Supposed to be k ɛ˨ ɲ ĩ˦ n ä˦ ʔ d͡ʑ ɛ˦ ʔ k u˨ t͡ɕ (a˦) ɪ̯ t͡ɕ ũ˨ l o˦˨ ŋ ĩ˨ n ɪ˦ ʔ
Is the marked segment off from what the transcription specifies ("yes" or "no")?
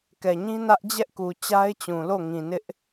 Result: no